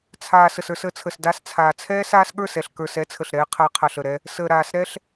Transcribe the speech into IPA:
t͡sʰ aː˨ s ə˨ s ə˞˧ s əː˧ t͡sʰ ə˨ s d a˧ s t͡sʰ aː˨ t͡sʰ ɛː˦ s aː˦ s ɠ ə˞˦˨ s ɛ˨ ɬ k ə˞˨ s ɛ˦ t͡sʰ ə˨ ɬ ɾ ɛː˧ qʰ a˧ qʰ a˨ ɬ ə˨ ɾ ɛ˧ | s əː˨ ɾ aː˨ s ɾ ɛ˦ ɬ

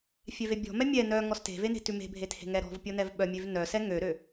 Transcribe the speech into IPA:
fʲ ɛ v e bʲ ɔ̤ m ɛ mʲ ɛ n œ ŋ ɔ s t e̤ v e n e̤ t ʉ m e̤ bʱ e t h e̤ ŋ ɛ ɾ ɔ̤ v pʲ ɔ n ɛ v ɓ œ mʲ ø v n œ s ɛ ŋ ø ɾ ø

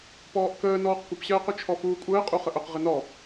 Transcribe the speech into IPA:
p ɔː ʔ k əː n ɔː q kʷ ə p ɕ ɜː q ʊ t͡ʃʰ ɔ f uː kʷʼ əː qʼ u χ ə ʔ ʊ q ʁ ɪ n ɔ

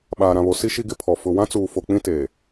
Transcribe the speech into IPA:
ɓ aː˨ ɾ ã˨ β o˨ s i˦ ʃ i˦ ɡ ɪ˦ pʰ ɔ˨ f ʊ˨ w ã˦ t͡s uː˨ f o˨ k͡p ĩ˦ t eː˨

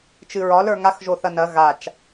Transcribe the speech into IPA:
t͡ʃ ɨ ɹ ɒ l ə˞ ŋ a x ʒ o θ ɐ n ɐ ɣ a t͡ʃ

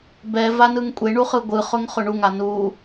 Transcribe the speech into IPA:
b ɛ v a n ɯ ŋ kʷʼ e ɳ u χ ɯ ɡʷ ɯ χ ʊ ŋ χ ʊ ɳ u ŋ a n u

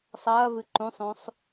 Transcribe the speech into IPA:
sˤ ɐː v ɨ ǃ ũ sˤ õ sˤ

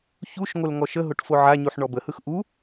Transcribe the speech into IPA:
ç u ʃ ŋʷ ə l ŋ ɔ ʃ ə ɦ o ʈ f o ʕ a ɲ u ħ ɳ ɔ b ə h ɯ x ʔ u

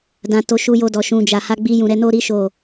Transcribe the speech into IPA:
d ã˧ t o˧ ʃ u˧ j o˧ d ɔ˨ ʃ ũ˨ d͡ʒ a˨ h a˨˦ ɡ͡b i˧ j ũ˨ ɾ ɛ˧ n o˦ ɾ i˦ ʃ o˦˨

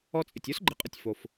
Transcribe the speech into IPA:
ɔ˥ t͡sʼ ɪ˨ tʲ o˥ s ɡ͡ǃ ɪ˨ qʼ ə˨ tʲ f o˨ f

